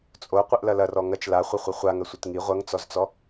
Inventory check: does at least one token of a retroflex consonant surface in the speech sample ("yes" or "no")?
no